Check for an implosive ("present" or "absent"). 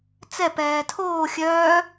absent